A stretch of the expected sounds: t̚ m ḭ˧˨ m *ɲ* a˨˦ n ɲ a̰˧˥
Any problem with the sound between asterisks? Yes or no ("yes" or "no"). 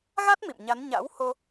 no